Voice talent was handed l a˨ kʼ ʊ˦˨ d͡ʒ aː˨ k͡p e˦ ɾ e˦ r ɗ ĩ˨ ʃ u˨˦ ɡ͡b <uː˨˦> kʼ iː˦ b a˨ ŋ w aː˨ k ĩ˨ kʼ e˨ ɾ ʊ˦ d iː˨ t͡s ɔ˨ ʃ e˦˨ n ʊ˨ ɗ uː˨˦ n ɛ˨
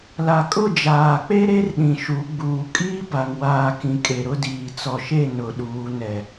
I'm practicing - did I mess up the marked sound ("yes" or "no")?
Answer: yes